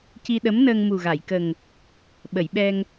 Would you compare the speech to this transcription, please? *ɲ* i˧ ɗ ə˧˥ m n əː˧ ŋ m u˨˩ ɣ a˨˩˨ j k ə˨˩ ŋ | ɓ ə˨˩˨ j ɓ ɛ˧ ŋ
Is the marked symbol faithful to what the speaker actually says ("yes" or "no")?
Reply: no